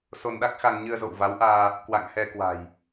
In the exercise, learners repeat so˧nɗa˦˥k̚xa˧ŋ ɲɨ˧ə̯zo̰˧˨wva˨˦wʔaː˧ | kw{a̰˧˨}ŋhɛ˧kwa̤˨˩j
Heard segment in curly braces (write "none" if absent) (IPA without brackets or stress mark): a̰˧˨